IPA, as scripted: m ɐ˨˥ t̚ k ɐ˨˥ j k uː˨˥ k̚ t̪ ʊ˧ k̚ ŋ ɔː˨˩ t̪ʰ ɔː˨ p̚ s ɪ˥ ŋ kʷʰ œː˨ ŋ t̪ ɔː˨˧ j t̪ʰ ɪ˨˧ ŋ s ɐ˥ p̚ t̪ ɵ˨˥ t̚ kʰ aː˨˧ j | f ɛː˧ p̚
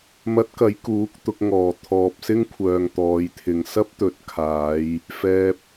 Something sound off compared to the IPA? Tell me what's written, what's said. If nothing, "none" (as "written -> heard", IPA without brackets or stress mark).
none